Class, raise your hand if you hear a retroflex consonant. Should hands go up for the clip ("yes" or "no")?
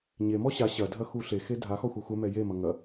no